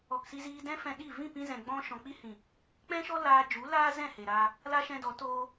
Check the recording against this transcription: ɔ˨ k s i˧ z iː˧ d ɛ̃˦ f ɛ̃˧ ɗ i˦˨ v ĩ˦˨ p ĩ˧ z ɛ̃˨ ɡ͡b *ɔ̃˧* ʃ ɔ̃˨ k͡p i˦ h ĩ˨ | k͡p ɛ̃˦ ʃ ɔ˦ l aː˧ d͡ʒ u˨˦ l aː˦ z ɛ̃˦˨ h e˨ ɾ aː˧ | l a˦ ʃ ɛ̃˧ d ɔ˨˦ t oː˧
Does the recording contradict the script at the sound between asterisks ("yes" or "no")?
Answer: yes